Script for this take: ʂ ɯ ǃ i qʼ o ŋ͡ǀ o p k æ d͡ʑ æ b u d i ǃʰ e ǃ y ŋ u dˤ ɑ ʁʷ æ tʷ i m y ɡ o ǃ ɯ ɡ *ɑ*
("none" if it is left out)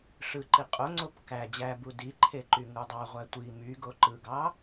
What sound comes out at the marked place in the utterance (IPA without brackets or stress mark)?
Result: ɑ